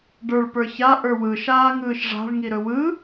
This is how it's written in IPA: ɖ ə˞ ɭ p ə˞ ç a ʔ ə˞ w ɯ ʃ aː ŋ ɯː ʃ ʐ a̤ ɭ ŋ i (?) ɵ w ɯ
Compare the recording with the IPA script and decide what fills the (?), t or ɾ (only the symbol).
ɾ